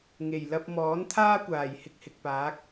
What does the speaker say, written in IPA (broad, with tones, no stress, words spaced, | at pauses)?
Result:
ŋe˨˩jlɐ˧p̚ mɔː˨˥nt̪ʰaː˥ kʷaː˨˩jhɪ˧k̚hɪ˨k̚paː˨˥k̚